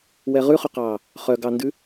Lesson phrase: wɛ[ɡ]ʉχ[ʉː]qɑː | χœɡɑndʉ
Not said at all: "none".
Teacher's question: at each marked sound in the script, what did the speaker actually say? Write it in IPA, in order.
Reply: ʁ, ʉ

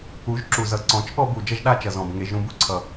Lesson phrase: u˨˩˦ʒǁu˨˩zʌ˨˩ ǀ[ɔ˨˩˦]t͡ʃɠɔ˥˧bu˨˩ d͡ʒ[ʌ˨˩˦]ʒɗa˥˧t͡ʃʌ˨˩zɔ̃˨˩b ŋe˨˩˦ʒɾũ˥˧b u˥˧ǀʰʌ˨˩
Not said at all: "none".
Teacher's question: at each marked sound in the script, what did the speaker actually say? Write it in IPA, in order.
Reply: ɔ̃˨˩˦, ʌ˥˧

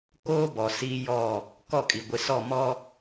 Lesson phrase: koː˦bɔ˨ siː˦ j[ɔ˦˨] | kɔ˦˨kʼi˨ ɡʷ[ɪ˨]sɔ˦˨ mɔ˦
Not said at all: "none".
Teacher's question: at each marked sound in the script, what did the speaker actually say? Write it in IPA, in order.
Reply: ɔ˦˨, ɪ˨

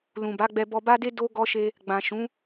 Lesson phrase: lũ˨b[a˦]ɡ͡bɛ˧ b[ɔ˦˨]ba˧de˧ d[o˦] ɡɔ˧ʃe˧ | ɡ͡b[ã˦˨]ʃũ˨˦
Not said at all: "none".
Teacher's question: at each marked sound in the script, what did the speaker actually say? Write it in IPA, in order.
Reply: a˨˦, ɔ˨, o˦, ã˨

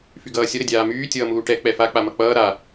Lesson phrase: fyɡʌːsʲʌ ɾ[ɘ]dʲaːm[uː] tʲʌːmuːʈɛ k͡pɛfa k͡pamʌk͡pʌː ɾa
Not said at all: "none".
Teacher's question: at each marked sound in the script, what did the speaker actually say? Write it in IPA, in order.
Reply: ɘ, yː

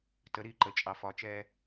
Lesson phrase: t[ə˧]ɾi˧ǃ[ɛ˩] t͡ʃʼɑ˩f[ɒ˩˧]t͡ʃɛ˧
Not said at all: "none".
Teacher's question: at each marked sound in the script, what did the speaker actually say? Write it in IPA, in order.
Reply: ə˩˧, ə˩, ɒ˩˧

